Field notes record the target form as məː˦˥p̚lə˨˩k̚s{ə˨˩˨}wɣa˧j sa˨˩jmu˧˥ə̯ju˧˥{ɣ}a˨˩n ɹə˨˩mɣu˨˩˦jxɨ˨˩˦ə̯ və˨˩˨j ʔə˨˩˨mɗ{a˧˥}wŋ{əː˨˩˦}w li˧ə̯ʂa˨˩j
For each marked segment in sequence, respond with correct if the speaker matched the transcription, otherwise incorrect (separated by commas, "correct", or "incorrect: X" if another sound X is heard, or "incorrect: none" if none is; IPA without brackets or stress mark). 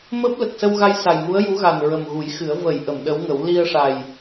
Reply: incorrect: ə˧, correct, incorrect: ə˧˥, incorrect: ə˨˩˦